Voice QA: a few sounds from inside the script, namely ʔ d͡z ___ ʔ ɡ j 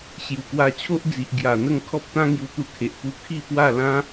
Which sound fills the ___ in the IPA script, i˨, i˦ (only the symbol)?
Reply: i˨